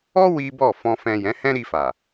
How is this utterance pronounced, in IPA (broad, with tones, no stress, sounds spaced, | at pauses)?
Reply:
ɔ˦ w i˦ b ɔ˦˨ f ɔ̃˨ f ɛ̃˨ j ɛ̃˨˦ h ɛ̃˦ ɾ i˧ f a˨